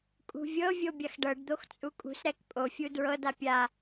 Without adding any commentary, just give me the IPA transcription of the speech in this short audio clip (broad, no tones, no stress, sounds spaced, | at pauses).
kʼ ṳ vʲ ɤ vʲ o bʲ a x ɖ ɤ ɖ d̪ o x t͡sʼ u kʼ ṳ s ɾ ɛ k pʼ o fʲ u d ɹ ɤ d a pʲ a